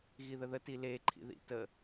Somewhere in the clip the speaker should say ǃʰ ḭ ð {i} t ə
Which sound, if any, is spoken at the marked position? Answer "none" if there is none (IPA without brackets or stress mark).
ḭ